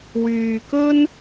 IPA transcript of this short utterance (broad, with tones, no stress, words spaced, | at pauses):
wyː˨kɵ˥n